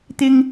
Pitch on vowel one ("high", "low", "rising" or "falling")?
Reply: high